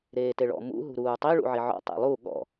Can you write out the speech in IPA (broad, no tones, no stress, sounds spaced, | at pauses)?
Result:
ɾ eː t e ɭ ɔ̰ m ṵ ɦ ṳ ɾ uː tˤ i ɭ ṵ ʕ i ʕ ɔ̰ tˤ ḛ lˠ u ɠ ɔ̰